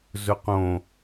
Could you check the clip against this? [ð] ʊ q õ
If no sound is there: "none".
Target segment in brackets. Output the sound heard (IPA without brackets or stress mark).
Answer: z